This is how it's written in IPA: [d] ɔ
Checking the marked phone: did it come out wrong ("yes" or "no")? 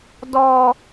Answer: no